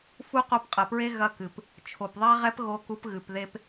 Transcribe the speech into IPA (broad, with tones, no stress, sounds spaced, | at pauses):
f u˦ q o˧ p qʼ ɐ˨ p ɹ e˦ ɣ ɐ˦ k ɨ˨ p | t͡ʃʰ o˨ p ðˤ e˦ ʁ ɛ˦ p ɣ o˧ k u˧ p ɣ ɨ˨ p ð e˧ p